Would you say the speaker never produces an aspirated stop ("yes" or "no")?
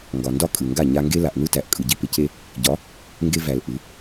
yes